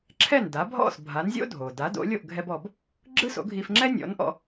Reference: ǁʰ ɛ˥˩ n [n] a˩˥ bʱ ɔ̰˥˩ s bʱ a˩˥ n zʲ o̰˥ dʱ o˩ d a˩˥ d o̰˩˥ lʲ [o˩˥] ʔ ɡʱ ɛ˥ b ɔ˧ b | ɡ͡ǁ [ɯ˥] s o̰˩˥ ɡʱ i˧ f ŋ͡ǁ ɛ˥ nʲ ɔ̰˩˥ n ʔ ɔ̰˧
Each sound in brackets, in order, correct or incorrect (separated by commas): incorrect, incorrect, correct